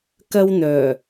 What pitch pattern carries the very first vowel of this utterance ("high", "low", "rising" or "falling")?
high